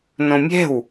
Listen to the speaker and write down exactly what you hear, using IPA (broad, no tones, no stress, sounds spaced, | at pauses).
n õ mʲ ɛ̤ w